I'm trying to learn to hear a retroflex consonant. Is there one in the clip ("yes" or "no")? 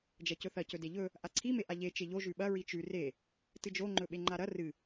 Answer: no